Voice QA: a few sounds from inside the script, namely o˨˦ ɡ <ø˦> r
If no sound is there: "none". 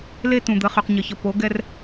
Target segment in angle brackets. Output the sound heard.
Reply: ɛ˦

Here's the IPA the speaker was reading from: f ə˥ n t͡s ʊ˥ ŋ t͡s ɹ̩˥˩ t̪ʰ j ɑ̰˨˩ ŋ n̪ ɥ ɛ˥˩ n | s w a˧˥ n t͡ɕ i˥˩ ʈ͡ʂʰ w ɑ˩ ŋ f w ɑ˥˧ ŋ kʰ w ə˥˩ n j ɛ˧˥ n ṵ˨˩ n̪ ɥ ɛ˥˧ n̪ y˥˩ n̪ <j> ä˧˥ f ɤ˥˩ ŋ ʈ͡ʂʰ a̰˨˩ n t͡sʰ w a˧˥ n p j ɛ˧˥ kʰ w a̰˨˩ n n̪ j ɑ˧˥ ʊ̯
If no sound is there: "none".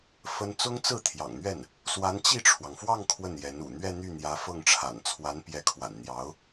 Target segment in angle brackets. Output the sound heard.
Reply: j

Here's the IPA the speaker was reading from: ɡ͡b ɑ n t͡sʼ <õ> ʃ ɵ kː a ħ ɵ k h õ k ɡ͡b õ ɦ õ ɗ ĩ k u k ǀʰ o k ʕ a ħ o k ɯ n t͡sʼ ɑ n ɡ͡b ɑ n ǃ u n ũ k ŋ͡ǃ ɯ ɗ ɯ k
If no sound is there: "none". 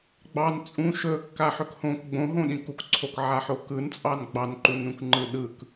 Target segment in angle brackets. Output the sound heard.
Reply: ũ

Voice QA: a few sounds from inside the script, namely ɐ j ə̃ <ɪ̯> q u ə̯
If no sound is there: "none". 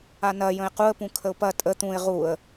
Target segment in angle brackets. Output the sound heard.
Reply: ɪ̯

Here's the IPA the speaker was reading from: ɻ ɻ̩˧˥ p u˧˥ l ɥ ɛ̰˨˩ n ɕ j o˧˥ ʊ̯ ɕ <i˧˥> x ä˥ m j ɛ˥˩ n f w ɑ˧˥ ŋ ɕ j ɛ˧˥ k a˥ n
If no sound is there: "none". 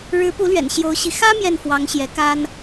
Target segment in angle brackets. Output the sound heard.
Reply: i˧˥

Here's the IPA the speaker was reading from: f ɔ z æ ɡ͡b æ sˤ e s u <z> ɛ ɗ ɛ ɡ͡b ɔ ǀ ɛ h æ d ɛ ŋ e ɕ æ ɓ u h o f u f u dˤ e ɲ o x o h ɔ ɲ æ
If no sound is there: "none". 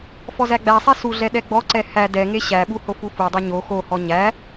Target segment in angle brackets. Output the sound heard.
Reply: ɮ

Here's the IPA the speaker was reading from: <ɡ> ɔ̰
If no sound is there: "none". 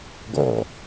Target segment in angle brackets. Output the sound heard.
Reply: ɡ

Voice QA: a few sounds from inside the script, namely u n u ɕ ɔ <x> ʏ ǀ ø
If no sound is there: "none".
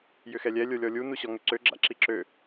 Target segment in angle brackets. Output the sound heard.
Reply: ŋ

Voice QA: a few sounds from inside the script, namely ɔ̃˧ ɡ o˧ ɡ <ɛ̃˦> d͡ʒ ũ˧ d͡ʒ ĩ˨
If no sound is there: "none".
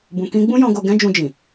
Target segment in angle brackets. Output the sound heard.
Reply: ɛ̃˦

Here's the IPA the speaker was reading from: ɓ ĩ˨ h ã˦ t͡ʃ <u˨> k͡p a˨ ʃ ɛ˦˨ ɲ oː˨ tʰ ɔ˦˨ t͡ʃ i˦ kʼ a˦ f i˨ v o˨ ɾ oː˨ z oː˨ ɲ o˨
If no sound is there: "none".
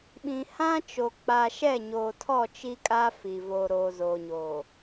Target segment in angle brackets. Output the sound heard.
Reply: o˨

